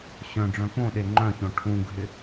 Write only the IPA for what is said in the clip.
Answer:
ɕœ̃ɖ͡ʐœ̃ põɗe ŋ͡ǃœ̃çõ ʈʰũɡʱɪ

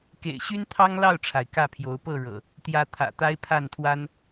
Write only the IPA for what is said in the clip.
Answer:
kḛ˨˩ɪ̯ɕy˦nt̪ʰɑ˦ŋ lɑ˥˨ʊ̯ʈ͡ʂʰa˩ɪ̯ kä˥˨pʰjo˨˦ʊ̯ pɤ˥˨ɻɤ̰˨˩ | t̪jä˨˦ t̪ʰä̰˨˩t̪a˦ɪ̯pʰa˥˨nt̪ʰwa˦n

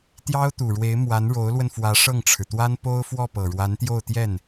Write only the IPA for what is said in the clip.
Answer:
t̪jɑ˥ʊ̯t̪u˨˩ɻwe˧˥ɪ̯ mwa˧˥nɻo˧˥ʊ̯lwə˧n fwä˧˥ʂɤ˥˩ŋʈ͡ʂʰɻ̩˩t̪wa˥n po˥ʊ̯fwɔ˥˩ pɤ˨˩ɻwa˧˥nt̪jo˥˧ʊ̯t̪jɛ˥˩n

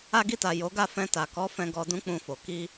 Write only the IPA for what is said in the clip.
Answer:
a˧ɡi˧ta˨ jo˨˦ ɡa˦˨ fɛ̃˧ta˨kɔ˨˦fɛ̃˧ ɡɔ˧dũ˦k͡pũ˧fo˨ ki˧

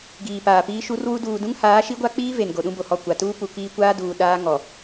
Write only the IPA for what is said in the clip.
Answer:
ɡiː˨paː˨piː˦ ʃu˦rwu˦ duː˨dũ˦ŋhaː˨˦ʃi˦ ɡʷa˦k͡piː˦ ve˨n ɡo˨ɗũ˦bo˨hɔ˦˨ kʷa˨ tuː˦pu˨ kiː˦ kʷaː˦duː˨ ɗaː˦ŋɔ˨

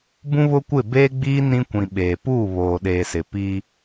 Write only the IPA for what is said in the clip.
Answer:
bũ˦βʊ˦kʷɪ˦˨ beː˦ɡ͡biː˦ nĩ˦kʷĩ˨ ɓeː˨ puː˦˨βoː˨ɗeː˨sɪ˨ piː˦

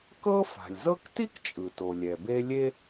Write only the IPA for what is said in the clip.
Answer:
kɤ˥fa̤˩lʲzɤ˥k ti˥kt͡ʃʼɯ˩to˩lʲɛ˩ be˦lʲe˥

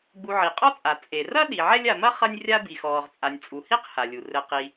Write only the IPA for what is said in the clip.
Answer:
ɡ͡bu˨ʕi˩qʼɔ˥t͡sʼa˩ t͡sʼe˩ rɐ˥ ɗi˩ʕɛ˦lʲa˨mɐ˥ χɐ˥nʲrʲa˥ bi˨xɔː˨ʁt͡sʼa˨nʲ t͡sʼu˩hi˥q ha˩lʲu˩ rɘ˨ qi˨

